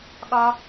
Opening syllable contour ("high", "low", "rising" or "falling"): high